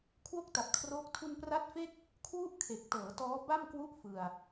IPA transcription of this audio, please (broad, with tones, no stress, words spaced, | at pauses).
kʰwo˥˩k̚ta˨˩p̚kʰroː˦˥k̚ tʰu˧npra˦˥t̚fe˥˩k̚ | kʰwu˥˩ʔkʰe˨˩k̚ tɤː˩˦tɔː˦˥ ba˥˩mkwu˥˩ʔ fɯ˧a̯